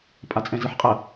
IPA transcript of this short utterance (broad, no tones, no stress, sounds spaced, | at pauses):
pʼ a t͡sʼ ɛ̃ z ɯ ħ qʼ ɜ